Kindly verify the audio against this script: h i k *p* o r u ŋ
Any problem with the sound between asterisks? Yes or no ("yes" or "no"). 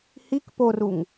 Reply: no